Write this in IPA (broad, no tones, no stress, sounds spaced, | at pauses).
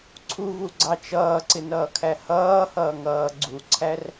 ǀʰ u v u ɡ͡ǀ ɑ t͡ʃ ʌː ǀ ɪ n ʌː kʰ æ h ʌː h ʌː ŋ ʌː ɡ͡ǀ u ǀʰ æ r